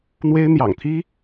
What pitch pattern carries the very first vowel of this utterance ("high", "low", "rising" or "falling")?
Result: high